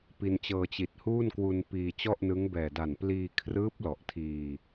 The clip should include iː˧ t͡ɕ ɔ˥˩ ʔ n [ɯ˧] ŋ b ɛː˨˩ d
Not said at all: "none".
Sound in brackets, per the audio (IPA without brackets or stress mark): ɯ˦˥